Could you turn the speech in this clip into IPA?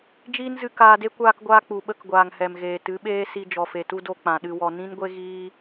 d͡ʒiː˦nzɨ˧ kaː˧de˦ kʷaː˧kɡʷaː˧ k͡pu˨ɓə˧k ɡʷaː˨ŋhɛ˨mɣeː˨ tɨ˨˦ɓeː˦si˧ d͡ʒɔ˨fe˨tu˧ do˧ k͡pã˨ɗɨ˧wɔ˧ nĩ˦nɡʷe˦ɣiː˦

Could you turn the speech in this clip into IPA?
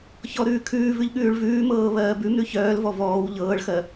çɔɾʉːkʰʉːvʉʎ ɠʉːɭvʉːmɤː βɜːbʉmɾʉ çœːlvɔ vɔːw ʎɤːɭxɜ

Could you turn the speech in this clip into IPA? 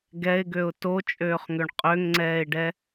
ɡɛɪ̯ɡøʊ̯ tot͡ʃʼøːχŋøɳ qʼøŋŋ͡ǀɛːɪ̯ɖɛ

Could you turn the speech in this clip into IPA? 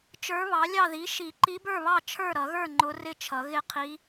t͡ʃə˞˧˥βɑ˩˥lʲɑ˥˨ ði˩˥ʃi˨˩˦ ǃi˧˥bə˞˥˨βɑ˥˨ t͡ʃʰə˞˥˨ ɾʌ˨˩˦ɣə˞˥˨ ŋ͡ǃʊ˧˥rɪ˥˨t͡ʃʰʌ˨˩˦ ɣɪ˥˨qʰi˧˥

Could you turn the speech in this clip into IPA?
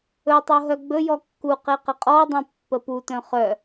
ɵtˤo ɦœɡ͡bɵjɔ kːuqe qəqʼɔdˤœ̃ pːəputœ̃ χœ

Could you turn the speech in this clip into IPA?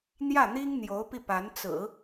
n̪jä˥˩n̪i˥ŋn̪jo˧˥ʊ̯pi˧ pa˧˥nt͡sɹ̩˨˩˦

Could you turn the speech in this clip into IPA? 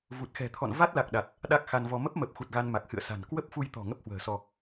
vu˨˩t̚xɛ̤˨˩t̪ʰɔ̰˧˨n va˦˥t̚la˨˩k̚ɗa˨˩t̚ | ɗa˦˥k̚xa˧nvɔ˧ mə˦˥p̚mə˨˩p̚xu˨˩t̚ ɣa˧nma˨˩k̚hɨ̰˧˨ə̯sa̤˨˩n kwə˦˥p̚fu˧jt̪ɔ̤˨˩ ŋə˦˥p̚hwə̤ː˨˩sɔ˧

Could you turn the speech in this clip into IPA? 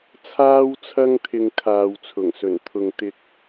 t͡sʰaː˥wt͡sʰɐ˥ŋ t̪ʰɪ˧ŋkʰaː˨wt͡sʰʊ˨˩ŋsɵ˨˩n t̪ʰʊ˨ŋt̪ɪ˧k̚

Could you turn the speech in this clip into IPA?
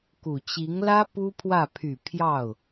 ku˨˩t͡ɕi˧˥ŋlä˥ pu˥pʰwä˥˩ pʰy˨˩ pʰjɑ˥˩ʊ̯

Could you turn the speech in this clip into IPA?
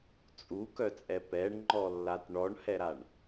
t͡sʼukœt͡sʼɛ pɛɳŋ͡ǃɔlːat ɳɔɳhɛɾaɳ

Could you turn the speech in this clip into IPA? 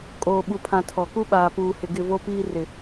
kʼoː˨ɓu˨pʰã˨ tʰɔ˨ku˦ ɓaː˨puː˨hɪ˨ ɡɪ˦˨vo˦piː˦ rɪ˨

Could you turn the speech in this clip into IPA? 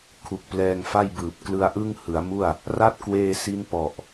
kʰu˨˩k̚plɛː˧ŋ fa˥˩jbɯː˨˩p̚ klɯ˧a̯ʔɯ˥˩ŋ hɯ˩˦a̯mu˥˩a̯ | ra˥˩t̚kweː˧si˦˥npɔ˨˩ʔ

